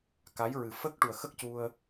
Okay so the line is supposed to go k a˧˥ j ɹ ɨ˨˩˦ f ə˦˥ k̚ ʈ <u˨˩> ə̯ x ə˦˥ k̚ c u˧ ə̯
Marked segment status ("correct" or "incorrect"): correct